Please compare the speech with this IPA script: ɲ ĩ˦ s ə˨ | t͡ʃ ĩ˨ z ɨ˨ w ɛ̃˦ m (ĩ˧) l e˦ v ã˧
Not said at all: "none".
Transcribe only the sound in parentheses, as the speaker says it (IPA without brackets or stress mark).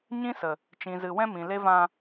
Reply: ĩ˨